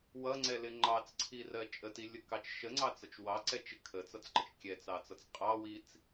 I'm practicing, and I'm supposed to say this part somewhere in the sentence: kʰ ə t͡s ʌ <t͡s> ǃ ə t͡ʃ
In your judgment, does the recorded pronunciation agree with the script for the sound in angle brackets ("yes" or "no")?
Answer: yes